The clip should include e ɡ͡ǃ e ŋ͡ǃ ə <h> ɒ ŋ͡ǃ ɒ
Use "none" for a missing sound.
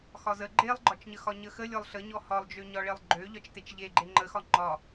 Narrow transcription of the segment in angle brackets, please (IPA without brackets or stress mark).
x